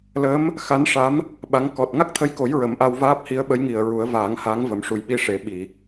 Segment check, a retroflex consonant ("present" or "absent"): present